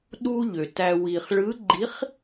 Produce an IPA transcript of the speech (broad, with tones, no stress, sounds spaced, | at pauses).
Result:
ɗ u˧ ʎ ø˩ t æ˧ w i˩ χ ɭ ɯ˨˥ ɡ͡ǃ i˨˥ χ